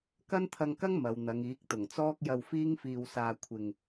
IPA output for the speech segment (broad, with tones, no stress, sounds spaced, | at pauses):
k ɐ˥ n t̪ʰ ɐ˧ ŋ k ɐ˥ ŋ m ɐ˨˧ w n̪ ɐ˨˧ ŋ iː˨˥ k̚ t̪ ʊ˨˩ ŋ t͡s ɔː˥ k̚ j ɐ˧ w f iː˥ ŋ f iː˧ w s aː˧ kʷʰ ɪ˧ ŋ